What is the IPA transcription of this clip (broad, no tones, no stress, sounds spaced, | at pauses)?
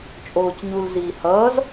t͡ʃʼ oː c ɲ u l z iː h ʌː z